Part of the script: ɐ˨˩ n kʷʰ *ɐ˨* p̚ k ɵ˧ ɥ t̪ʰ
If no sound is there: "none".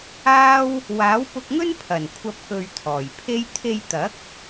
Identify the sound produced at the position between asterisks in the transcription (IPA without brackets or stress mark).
ɐ˨